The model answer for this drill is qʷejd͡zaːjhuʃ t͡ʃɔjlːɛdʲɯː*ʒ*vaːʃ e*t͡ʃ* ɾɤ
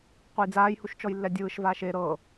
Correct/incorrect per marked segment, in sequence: incorrect, incorrect

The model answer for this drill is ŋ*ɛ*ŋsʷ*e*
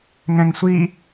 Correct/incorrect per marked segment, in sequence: incorrect, incorrect

